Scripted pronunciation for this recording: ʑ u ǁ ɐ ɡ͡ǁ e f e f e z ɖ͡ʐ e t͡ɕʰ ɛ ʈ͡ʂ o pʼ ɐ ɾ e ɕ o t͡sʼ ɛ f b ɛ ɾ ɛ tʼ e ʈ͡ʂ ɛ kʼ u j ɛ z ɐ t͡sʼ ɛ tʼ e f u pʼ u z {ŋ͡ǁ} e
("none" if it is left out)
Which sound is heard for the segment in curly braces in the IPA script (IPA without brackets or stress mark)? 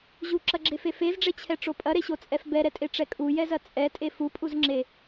ŋ͡ǁ